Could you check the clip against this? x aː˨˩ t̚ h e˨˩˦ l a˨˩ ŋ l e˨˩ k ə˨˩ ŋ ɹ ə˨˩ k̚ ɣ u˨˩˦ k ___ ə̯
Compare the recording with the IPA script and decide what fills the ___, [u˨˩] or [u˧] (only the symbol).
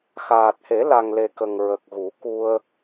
u˧